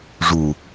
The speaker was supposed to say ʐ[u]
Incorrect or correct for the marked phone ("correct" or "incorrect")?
correct